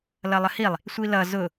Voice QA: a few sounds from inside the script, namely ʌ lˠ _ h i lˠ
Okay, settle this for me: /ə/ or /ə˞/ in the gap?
ə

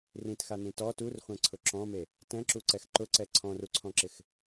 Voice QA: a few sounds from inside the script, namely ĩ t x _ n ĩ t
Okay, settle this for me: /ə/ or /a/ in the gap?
a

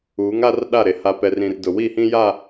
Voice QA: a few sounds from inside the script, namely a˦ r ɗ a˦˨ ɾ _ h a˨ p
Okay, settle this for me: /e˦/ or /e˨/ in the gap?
e˨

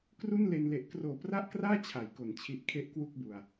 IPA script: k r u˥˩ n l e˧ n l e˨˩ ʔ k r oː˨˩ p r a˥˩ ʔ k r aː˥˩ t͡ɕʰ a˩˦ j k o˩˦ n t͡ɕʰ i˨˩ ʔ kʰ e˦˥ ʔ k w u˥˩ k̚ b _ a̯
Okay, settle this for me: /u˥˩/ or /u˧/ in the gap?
u˧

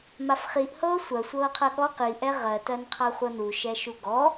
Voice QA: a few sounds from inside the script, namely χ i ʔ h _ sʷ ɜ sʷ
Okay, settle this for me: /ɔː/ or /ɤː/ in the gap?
ɤː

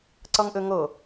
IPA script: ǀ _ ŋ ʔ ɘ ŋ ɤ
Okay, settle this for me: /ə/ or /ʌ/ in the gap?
ʌ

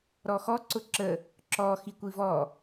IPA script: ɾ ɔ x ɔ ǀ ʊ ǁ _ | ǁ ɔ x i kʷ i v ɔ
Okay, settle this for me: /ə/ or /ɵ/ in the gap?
ə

